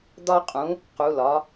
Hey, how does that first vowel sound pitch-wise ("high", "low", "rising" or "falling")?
high